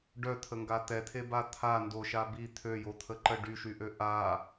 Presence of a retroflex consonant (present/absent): present